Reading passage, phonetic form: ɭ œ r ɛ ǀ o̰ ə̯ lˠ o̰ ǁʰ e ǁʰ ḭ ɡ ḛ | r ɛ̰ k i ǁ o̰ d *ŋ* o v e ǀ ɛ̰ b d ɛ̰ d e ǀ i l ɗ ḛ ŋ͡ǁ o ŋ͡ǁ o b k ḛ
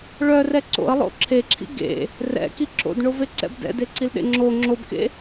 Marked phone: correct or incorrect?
incorrect